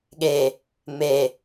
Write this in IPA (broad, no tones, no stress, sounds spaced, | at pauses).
ɠ e | m e